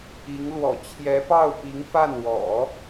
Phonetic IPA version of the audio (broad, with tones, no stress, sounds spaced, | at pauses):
i˧˥ ŋ l w ɔ̰˨˩ t͡ɕʰ j ɛ˧˥ p ɑ˥˩ ʊ̯ p i˧˥ ŋ f a˥˩ n w ɔ̰˨˩˦